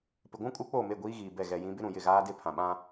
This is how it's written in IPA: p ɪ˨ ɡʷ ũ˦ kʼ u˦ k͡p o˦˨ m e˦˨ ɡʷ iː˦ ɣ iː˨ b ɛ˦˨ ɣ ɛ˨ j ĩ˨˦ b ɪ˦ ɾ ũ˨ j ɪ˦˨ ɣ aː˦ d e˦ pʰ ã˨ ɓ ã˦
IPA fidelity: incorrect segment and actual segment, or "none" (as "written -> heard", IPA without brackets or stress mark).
none